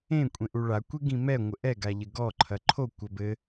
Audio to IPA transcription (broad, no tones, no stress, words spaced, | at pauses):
ẽ kʷʼẽʔuɭa kʷeɡĩmɛ ŋʷɘʔɛ ɡaʎɘɡɔ ǃʰɐǃʰo kʷɐbɘ